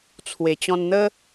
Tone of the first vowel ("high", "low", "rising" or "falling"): low